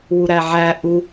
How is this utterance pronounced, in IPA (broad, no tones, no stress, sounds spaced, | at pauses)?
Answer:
w u ɾ æ ʕ æ ʔ u